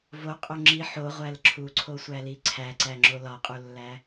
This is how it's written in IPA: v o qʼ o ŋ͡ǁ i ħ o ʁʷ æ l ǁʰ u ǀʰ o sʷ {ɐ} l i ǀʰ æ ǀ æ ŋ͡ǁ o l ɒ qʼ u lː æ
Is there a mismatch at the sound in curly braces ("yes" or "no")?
yes